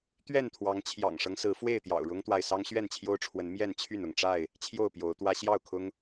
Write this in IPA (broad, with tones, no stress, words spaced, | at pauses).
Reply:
t̪ɥɛ˥˨nt̪ʰwɑ˨˦ŋ t͡ɕʰjɑ̰˨˩ŋʂɤ˦ŋsɹ̩˨˦ fwe˥˨ɪ̯t̪jɑ̰˨˩ʊ̯ɻʊ˦ŋt̪wa˨ɪ̯ sɑ˦ŋɕɥɛ˥˨nt͡ɕʰjo˦ʊ̯ʈ͡ʂʰwə˨˦n mjɛ˥˨nt͡ɕʰy˥˨n ʊ˥˨ŋʈ͡ʂa˥˨ɪ̯ | t͡ɕʰjo˥˨ʊ̯pjo˨˦ʊ̯t̪wä˦ ɕjɑ˥˨ʊ̯kʰʊ˦ŋ